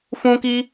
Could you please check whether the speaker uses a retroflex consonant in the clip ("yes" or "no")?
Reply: no